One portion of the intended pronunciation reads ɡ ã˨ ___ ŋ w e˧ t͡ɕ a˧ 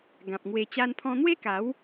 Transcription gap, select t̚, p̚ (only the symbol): p̚